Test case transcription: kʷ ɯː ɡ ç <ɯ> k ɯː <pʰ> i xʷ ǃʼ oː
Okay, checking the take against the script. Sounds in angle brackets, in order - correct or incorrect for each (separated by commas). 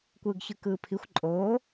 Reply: correct, correct